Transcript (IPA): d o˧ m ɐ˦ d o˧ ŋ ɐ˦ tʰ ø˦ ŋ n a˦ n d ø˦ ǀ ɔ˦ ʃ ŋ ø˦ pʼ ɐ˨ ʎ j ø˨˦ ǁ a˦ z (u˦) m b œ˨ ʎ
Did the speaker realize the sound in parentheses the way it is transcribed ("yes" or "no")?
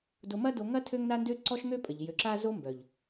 no